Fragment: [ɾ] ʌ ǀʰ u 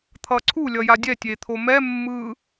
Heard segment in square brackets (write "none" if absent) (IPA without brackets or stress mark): t̪ʰ